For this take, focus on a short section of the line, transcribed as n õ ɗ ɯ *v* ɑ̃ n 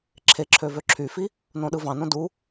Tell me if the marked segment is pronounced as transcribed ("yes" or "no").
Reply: yes